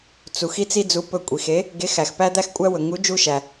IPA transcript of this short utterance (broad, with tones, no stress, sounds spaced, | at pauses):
t͡s u˩ x i˦ t͡s i˦ d͡z u˨˥ p ɵ˧˩ kʷʼ i˩ x e˨˥ | ɡ e˨˥ x æ˩ x p æ˦ d̪ æ˦ x kʷʼ æ˦ w ɵ˩ ŋ u˨˥ d͡ʒ u˦ ʃ æ˩